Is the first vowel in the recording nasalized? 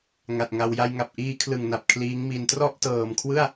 no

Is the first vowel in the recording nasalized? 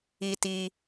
no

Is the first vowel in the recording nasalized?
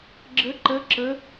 no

